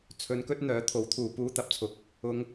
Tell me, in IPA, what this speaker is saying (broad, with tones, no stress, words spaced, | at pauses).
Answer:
t͡sʰɵ˨˧nkɵ˧t̚ n̪œː˨˥t̪ʰo˨˥wt̪ʰuː˨ puː˧t̪ɐ˨p̚t͡sʰʊ˨k̚ | ʊ˧ŋ